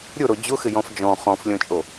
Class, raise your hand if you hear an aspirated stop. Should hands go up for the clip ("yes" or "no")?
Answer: no